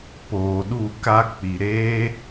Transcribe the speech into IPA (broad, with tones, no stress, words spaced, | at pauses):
poː˨ɗu˦˨ ka˧k͡pi˨ ɾeː˦